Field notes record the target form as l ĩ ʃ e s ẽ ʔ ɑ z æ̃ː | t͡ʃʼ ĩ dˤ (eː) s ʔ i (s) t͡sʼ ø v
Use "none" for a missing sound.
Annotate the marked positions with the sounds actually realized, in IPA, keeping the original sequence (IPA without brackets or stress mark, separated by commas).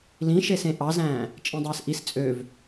eː, s